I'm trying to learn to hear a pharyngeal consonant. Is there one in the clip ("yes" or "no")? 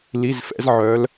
yes